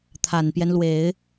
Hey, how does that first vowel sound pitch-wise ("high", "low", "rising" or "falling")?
low